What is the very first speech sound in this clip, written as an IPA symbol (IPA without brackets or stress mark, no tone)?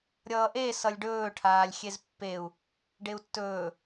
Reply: ɾʲ